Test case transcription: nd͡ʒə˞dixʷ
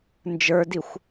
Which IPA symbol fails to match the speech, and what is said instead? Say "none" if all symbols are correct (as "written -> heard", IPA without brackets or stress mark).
none